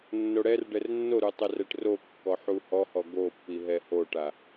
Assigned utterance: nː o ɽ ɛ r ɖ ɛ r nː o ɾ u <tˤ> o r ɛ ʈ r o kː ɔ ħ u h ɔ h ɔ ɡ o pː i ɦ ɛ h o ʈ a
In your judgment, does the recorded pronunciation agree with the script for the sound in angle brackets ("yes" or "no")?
yes